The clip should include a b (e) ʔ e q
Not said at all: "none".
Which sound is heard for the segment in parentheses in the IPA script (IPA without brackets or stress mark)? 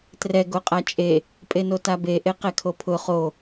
e